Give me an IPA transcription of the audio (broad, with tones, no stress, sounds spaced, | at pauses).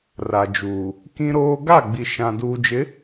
r a˨ d͡ʒ uː˨ | k ĩ˦ ɾ oː˦ ɡ a˦˨ ɡ͡b i˨ ʃ ã˨ d uː˨ d͡ʒ ɪ˨˦